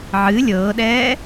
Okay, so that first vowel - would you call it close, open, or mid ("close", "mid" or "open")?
close